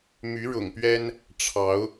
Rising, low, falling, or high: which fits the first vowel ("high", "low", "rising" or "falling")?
rising